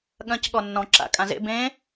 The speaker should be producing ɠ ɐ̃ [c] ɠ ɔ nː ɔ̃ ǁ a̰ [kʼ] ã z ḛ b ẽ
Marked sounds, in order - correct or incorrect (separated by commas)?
correct, correct